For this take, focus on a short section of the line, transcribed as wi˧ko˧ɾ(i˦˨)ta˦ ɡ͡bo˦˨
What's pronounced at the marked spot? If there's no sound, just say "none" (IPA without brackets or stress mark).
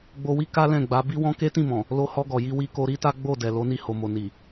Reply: i˦